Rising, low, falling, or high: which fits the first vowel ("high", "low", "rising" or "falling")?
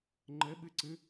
rising